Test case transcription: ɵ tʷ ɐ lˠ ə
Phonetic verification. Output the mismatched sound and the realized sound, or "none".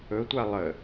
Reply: ɐ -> a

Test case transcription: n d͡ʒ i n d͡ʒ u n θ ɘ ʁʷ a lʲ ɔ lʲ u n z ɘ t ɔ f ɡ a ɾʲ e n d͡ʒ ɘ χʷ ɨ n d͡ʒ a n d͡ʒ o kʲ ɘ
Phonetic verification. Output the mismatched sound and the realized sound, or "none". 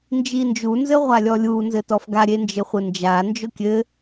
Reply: θ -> z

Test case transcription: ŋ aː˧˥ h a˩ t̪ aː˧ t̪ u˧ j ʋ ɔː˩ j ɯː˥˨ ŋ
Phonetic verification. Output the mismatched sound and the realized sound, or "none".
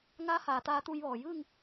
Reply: a˩ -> aː˩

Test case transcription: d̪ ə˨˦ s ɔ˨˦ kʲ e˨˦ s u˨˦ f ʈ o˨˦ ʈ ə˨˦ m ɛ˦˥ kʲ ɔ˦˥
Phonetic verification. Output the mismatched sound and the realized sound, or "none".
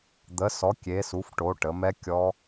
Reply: none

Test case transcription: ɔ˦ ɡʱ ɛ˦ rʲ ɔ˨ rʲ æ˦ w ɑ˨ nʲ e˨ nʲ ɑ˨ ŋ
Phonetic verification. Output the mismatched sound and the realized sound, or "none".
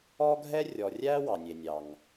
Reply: none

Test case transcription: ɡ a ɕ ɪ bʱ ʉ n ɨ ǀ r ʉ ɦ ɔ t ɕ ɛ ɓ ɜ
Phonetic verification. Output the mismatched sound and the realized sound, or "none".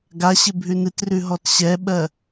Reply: ǀ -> t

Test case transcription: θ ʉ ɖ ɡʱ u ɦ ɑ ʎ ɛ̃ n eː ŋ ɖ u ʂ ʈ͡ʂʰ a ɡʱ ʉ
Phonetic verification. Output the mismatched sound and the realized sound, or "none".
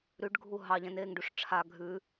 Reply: θ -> ɾ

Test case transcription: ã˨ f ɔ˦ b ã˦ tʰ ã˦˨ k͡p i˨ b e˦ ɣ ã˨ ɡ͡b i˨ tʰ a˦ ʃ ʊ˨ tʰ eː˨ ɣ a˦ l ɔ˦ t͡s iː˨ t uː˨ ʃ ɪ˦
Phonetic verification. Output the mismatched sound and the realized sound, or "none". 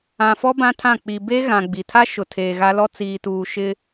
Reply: none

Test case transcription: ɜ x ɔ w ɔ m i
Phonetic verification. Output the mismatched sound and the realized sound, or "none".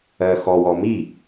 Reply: none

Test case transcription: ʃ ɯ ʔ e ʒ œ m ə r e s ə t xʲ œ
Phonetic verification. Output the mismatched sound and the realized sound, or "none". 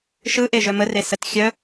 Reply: none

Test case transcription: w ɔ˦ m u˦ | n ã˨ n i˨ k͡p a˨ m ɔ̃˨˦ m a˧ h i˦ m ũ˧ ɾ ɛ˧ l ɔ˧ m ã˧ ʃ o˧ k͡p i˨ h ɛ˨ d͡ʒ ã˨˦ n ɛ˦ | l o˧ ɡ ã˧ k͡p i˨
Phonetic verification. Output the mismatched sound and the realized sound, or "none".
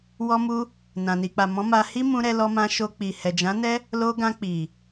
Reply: none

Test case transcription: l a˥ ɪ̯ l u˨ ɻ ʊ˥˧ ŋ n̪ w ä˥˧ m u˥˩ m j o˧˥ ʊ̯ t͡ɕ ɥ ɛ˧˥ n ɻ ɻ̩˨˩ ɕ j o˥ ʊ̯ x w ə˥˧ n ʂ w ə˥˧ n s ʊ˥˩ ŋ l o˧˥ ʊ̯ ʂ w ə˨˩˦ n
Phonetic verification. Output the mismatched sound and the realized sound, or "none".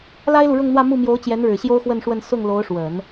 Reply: ɥ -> j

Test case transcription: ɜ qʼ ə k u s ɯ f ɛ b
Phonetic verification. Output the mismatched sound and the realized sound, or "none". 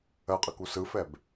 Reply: none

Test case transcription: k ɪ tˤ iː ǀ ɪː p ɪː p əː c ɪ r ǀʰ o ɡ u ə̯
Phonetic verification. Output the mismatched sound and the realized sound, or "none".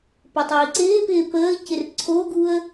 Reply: k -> p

